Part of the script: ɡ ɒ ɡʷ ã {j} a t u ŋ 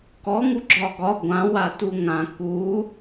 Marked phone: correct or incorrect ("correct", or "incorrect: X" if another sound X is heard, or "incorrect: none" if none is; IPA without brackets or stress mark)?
incorrect: w